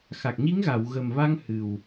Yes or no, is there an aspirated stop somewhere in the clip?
no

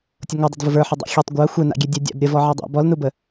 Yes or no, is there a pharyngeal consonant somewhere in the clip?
yes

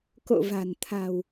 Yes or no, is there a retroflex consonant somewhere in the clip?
no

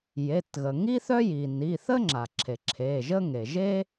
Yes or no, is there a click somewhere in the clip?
yes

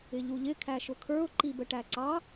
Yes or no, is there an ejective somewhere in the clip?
no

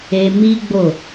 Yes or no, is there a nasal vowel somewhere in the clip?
no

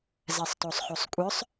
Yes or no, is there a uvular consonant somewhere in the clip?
yes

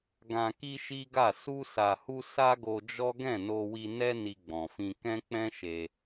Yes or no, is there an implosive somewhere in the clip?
no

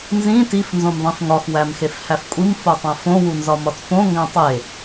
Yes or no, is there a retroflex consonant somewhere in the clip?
no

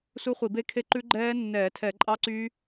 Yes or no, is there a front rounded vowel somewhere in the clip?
yes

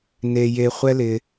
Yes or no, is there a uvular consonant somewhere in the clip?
yes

